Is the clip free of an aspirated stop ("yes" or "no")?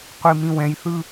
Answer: yes